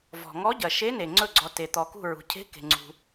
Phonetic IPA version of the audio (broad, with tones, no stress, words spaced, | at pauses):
vɔ̤˩ŋɔ˧˥ ɟɐ˩ ʃe˧˥ne˩ ŋ͡ǀɵ˧˩ɡ͡ǀɔ˩ te˩ t̪ɔ˩kṳ˧˩ ɹṳ˩cʰe̤˧˥ke̤˩ ŋ͡ǀṳ˩